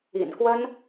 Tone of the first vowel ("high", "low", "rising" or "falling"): low